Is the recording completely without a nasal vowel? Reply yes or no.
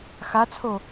yes